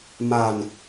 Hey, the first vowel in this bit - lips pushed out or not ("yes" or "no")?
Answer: no